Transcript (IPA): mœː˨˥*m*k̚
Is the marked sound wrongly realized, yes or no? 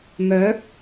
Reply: yes